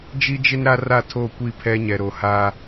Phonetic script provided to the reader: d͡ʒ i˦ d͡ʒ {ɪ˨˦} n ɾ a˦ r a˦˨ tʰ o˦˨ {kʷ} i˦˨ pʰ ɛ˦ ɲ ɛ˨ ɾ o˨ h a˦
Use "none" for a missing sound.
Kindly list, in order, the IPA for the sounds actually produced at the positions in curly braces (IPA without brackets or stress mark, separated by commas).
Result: ɪ˦, kʷ